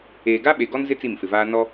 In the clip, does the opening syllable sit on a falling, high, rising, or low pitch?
low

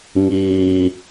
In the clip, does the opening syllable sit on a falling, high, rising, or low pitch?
low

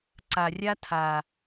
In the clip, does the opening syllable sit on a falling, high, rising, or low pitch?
low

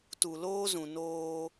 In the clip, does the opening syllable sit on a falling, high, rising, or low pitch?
low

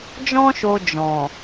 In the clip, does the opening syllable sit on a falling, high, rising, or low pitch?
high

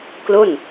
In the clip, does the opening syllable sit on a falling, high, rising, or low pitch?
falling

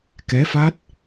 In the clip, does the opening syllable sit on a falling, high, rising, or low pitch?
rising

